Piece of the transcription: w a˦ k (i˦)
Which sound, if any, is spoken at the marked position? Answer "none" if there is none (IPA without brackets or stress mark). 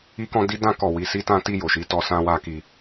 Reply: i˦